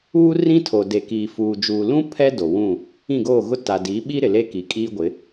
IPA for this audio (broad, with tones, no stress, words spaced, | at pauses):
uː˦ rĩ˦tʰo˨ de˨kiː˨ fuː˨ d͡ʒuː˨lũ˦ pʰɛ˦ do˨wũ˦˨ | ĩ˦˨ɡoː˦˨ɣʊ˦ ta˨di˨˦ɓi˦ ɾɪ˨le˦ki˨kʼiː˦ ɡʷɪ˨˦